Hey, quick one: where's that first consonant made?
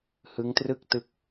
throat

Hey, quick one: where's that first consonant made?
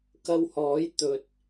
velum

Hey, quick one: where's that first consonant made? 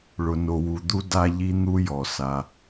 retroflex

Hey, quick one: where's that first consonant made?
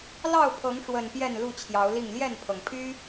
tongue tip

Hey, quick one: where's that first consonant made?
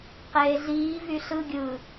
uvula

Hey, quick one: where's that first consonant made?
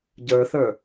palate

